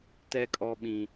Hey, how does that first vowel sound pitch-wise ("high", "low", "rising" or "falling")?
high